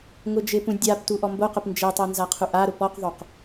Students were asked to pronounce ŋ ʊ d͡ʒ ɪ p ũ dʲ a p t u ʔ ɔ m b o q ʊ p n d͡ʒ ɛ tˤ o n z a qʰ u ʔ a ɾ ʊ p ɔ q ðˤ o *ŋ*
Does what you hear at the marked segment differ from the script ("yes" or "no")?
yes